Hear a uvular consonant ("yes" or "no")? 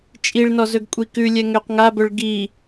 yes